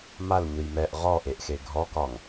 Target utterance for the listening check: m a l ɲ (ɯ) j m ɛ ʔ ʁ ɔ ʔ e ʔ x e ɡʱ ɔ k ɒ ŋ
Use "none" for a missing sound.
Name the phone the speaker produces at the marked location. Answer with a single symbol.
ɯ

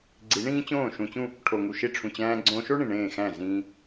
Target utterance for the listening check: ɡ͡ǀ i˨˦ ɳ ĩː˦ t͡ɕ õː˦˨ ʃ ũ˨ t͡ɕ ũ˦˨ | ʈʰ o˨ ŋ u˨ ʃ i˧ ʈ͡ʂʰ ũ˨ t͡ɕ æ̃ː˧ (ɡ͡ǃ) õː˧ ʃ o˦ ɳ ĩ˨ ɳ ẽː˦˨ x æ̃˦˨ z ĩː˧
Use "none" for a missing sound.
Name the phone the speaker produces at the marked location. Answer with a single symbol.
ɡ͡ǀ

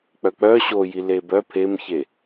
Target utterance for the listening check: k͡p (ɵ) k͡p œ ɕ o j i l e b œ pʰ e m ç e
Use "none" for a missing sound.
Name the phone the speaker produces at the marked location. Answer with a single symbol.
œ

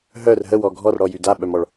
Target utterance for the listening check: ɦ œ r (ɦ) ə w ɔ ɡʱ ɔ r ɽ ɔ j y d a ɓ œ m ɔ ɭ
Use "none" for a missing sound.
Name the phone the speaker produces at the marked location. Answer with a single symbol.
ɦ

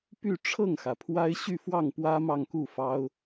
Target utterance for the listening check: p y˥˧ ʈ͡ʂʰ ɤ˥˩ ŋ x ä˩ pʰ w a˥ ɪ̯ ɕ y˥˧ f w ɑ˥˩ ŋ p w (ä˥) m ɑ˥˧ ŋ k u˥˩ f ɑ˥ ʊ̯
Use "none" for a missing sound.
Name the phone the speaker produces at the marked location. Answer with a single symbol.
ä˥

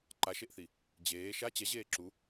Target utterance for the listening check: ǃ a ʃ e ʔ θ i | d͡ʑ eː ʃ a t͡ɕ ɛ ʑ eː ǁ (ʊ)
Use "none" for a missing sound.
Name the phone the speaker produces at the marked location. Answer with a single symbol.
u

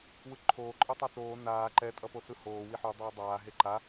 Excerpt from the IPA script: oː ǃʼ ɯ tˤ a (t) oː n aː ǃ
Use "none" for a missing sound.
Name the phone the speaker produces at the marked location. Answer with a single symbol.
t͡s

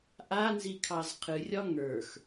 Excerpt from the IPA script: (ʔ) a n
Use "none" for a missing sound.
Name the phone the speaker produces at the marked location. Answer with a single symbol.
ʔ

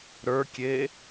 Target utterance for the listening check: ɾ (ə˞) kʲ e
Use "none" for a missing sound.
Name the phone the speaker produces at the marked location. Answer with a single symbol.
ə˞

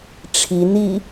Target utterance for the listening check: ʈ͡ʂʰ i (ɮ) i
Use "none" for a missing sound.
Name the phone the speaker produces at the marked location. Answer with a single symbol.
n̪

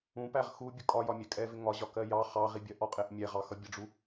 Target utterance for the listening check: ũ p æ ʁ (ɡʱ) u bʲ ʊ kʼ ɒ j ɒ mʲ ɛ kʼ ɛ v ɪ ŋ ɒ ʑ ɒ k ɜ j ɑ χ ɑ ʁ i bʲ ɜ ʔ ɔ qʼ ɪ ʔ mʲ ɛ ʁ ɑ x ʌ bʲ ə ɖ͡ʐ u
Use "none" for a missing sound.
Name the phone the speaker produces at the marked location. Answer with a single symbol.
x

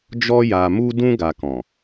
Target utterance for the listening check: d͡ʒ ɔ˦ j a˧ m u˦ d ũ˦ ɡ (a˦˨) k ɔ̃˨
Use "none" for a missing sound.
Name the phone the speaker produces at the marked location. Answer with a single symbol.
a˧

